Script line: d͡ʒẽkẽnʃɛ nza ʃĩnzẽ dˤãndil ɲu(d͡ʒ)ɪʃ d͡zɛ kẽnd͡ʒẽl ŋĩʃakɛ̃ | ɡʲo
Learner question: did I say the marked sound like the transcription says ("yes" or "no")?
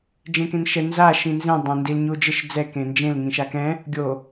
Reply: yes